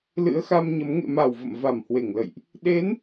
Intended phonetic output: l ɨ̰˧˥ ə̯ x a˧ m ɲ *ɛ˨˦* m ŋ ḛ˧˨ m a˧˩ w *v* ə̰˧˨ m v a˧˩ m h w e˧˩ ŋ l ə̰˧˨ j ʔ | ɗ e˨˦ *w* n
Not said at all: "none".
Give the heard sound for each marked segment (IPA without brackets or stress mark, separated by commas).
ə˨˦, v, none